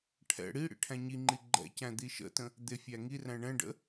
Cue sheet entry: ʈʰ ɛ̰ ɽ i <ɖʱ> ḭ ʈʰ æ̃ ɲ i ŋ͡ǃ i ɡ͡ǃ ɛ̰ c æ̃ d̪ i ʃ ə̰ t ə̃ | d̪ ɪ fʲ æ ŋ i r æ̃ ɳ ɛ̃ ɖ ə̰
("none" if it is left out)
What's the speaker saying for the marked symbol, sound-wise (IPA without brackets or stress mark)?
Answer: ɽ